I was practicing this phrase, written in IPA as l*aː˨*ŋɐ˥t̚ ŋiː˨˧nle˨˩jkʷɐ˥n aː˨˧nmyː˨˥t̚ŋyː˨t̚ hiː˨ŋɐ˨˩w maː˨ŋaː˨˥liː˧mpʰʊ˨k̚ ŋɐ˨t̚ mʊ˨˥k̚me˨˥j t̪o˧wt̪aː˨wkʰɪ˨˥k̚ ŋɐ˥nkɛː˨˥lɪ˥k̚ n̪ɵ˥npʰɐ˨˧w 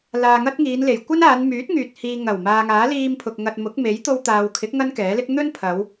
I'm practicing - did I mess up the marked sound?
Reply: yes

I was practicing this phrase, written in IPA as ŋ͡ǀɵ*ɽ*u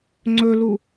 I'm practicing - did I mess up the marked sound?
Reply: yes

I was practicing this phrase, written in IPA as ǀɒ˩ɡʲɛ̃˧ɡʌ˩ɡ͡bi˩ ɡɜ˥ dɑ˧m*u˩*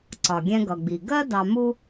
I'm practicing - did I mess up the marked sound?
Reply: yes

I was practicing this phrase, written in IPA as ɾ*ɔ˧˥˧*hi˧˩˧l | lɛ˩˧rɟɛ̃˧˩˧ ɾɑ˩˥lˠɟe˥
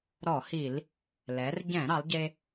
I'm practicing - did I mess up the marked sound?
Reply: yes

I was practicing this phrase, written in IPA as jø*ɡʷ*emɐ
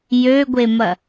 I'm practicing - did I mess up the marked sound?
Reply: no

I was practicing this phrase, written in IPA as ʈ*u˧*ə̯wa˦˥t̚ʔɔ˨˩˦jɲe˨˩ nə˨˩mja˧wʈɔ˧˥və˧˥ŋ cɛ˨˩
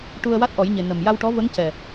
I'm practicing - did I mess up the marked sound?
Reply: no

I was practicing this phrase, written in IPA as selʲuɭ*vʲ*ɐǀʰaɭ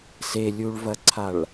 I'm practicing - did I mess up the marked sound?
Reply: yes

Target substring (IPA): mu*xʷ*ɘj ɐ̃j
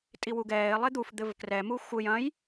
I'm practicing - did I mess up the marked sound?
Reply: no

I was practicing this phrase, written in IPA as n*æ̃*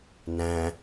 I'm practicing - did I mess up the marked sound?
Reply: no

